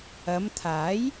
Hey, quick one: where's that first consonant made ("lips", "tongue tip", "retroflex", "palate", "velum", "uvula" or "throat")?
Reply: lips